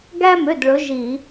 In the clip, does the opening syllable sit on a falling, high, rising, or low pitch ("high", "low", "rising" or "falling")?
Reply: high